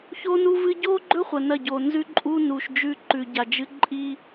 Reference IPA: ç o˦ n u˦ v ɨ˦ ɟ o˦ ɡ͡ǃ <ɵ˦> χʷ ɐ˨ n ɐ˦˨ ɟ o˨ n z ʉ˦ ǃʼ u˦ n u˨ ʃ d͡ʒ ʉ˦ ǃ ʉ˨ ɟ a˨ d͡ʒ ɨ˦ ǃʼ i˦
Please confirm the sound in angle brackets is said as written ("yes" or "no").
yes